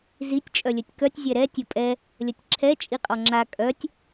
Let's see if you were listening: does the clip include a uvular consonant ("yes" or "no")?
yes